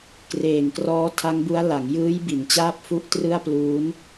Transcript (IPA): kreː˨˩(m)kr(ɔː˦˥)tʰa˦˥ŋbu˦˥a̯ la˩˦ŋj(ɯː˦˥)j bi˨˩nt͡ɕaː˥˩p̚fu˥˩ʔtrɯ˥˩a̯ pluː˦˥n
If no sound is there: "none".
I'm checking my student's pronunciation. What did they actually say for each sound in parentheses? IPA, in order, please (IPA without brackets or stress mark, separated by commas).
ŋ, ɔː˦˥, ɯː˦˥